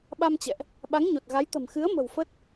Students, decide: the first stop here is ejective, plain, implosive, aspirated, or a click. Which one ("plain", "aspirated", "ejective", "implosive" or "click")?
implosive